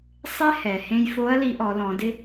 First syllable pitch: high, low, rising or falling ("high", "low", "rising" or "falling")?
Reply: high